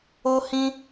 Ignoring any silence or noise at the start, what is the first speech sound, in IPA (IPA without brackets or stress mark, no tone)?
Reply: o